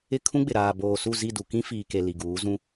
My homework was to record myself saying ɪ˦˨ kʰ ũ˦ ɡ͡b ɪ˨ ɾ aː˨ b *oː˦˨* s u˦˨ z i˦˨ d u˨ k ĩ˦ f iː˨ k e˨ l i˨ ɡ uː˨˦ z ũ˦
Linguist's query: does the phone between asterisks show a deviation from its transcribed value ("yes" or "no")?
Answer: yes